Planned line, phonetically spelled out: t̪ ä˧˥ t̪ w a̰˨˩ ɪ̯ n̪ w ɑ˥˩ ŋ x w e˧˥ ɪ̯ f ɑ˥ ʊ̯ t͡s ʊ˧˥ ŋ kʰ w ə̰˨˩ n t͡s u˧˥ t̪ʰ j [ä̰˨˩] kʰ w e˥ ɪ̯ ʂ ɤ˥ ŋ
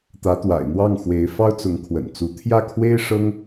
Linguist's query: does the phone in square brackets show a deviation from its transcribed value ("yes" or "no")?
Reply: yes